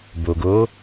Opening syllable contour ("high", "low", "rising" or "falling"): low